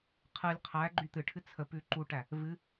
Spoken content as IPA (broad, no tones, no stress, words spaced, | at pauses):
qʰɨlʲ qʰæ ɡ͡ǃyt̪ɨʈʰɨ t͡sʰəpʉ ǃuʈæ | vɨ